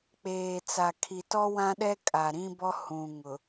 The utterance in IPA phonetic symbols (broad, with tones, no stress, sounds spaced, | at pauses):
k͡p eː˨ t͡s a˨ kʰ i˨ t ɔ˦ w ã˦ ɗ ɛ˦ kʼ a˨ ɾ ĩ˦ b ɔ˦ h ũ˨ ŋ ʊ˨